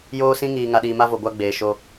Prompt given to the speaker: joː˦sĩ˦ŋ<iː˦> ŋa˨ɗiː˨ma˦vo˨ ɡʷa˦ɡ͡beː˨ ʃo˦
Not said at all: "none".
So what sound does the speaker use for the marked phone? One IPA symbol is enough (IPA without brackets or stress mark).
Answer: iː˨